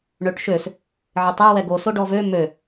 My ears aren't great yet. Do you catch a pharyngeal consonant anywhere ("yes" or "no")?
yes